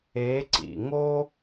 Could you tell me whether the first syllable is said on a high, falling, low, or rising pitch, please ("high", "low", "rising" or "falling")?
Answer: rising